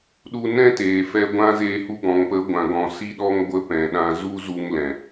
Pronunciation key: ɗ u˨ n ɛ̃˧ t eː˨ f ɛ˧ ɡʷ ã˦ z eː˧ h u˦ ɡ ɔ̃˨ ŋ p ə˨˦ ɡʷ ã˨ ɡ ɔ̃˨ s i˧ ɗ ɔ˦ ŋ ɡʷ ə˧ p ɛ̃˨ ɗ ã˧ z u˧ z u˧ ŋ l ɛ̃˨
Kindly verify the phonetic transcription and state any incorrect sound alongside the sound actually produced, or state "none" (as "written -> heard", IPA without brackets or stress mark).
i˧ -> i˦